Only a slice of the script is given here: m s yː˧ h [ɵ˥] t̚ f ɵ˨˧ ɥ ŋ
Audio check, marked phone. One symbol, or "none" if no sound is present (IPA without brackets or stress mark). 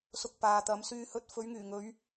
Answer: ɵ˧